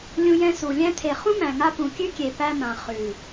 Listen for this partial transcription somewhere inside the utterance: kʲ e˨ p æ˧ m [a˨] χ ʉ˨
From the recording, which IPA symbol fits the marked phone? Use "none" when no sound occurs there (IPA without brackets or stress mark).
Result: ã˨